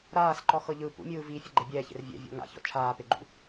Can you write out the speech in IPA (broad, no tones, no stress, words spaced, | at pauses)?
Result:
ɾaːsǃɔxɤ ʎɯ pṵmʲɯː vi fʲɛɡ͡ǃebʲɛːçḛr vʲɛ̰vʲɔ̰ ŋa̰çɔ̰ t͡ʃʰaːpeɡ͡ǃṵ